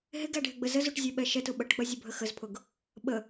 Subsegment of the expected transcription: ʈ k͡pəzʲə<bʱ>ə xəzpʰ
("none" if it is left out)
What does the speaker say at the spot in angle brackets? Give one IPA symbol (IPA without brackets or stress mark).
bʱ